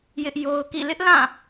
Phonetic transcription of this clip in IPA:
jɪ˦ʔjo˦ʊ̯kḭ˦˨ lɪ˦ʔlã˦˨

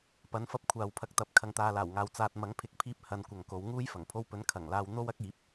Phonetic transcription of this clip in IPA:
pɐ˨˥nfɐ˧p̚ kʷʰaː˨wpʰɐ˧k̚t̪ɐ˨˥p̚ kʰɐ˨ŋt̪aː˨laː˨˩wŋaː˨w t͡saː˨t̚mɐ˨˥ŋpʰɪ˨˥k̚pʰiː˧p̚ hɐ˨˧nkʷɐ˨ŋ ko˨˧wŋuː˥j fɐ˨˩ŋpʰo˧wpɵ˨˥n kʰɐ˨˩ŋlaː˧w n̪o˥wɐ˥k̚ iː˨˥p̚

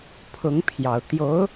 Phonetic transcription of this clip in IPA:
pʰʊ˧˥ŋpʰjɑ˨˩ʊ̯ t̪jo˧˥ʊ̯

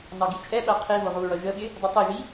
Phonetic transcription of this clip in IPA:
nɑɡit͡ʃʼɛɓæ qʰivʊ ʁuɹʌ ʒəɓɪ | dˤitˤiʒi

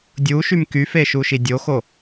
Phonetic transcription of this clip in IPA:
dʲuʃym kyfeʃuʃi dʲoxo

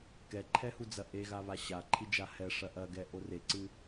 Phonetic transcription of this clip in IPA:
kɛǃʰɛhud͡zɐ ʔeɣaβa ɕaǃʰid͡ʒa hɛʂɐ ʔɐɡɛʔo reǀɨ

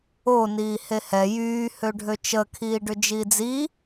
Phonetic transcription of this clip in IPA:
o niːhehɛ jyː høɖʱøt͡ʃə kʰiːɖʏd͡ʒiːd͡zi

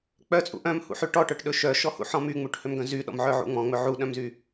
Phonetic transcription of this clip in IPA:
k͡pœt͡sʼṵ ʔœ̃mhṵħy ʈɔʈœʈɗɵ ʃœʃɔhṵħɔ̃ myŋ͡muʈhømɡœ̃ zyɗɔ̰mʕœʕṵ ŋ͡mɔ̃ŋ͡mɵ ʕuɗœ̃mzy

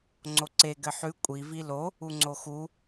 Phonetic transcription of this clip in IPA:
ŋ͡ǀoǀe ɡɘħʉ kʷʼi vilo | uŋ͡ǀoxu

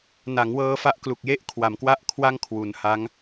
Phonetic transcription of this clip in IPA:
na˩˦ŋwɤː˧fa˦˥ʔklu˨˩k̚ je˦˥ʔkʰwa˩˦mkwa˦˥ʔ kʰwa˥˩ŋkʰwu˩˦nha˦˥ŋ

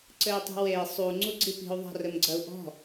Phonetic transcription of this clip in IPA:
ǀɘi̯tˤi̤wei̯ sˤu ŋ͡ǀuɡ͡ǀipi̤u̯ ðˤa̤rɘmɡ͡ǀɐu̯ʔɔ̤

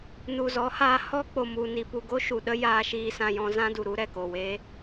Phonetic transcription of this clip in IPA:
nu˨zɔ˨˦haː˧ hɔ˦k͡po˨mu˨ ni˨pu˨ɡo˦ ʃu˨ɗə˦ jaː˧ʃiː˧sã˧jɔ̃˧ zã˦du˨ ɾu˦ ɾɛ˨ko˨weː˦

